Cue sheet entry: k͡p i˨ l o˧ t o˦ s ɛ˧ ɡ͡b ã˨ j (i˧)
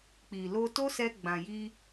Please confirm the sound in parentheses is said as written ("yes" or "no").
yes